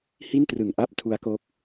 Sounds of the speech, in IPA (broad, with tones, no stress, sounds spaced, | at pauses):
h i˥˩ n t r ɯ˨˩ ŋ ʔ a˥˩ p̚ tʰ u˦˥ a̯ k o˦˥ k̚